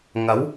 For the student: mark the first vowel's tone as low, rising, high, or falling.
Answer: rising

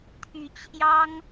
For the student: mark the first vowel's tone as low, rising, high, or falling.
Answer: rising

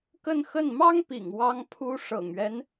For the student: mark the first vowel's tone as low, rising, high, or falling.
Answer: falling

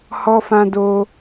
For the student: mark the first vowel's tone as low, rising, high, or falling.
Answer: high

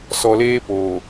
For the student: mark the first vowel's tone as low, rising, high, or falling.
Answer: low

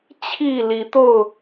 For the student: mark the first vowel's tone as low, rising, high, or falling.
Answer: falling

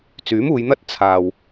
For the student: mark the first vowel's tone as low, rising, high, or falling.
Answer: rising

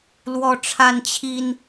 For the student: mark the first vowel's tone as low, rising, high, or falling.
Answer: high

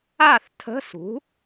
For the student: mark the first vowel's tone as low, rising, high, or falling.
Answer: falling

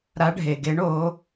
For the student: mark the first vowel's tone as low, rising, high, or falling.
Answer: rising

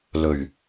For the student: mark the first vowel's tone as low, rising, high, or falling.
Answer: low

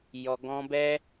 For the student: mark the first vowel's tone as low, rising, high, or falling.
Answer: low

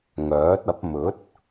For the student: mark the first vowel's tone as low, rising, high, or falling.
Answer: rising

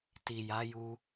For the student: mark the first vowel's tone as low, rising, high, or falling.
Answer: low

